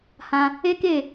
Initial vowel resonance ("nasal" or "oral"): nasal